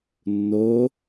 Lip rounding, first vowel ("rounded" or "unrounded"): rounded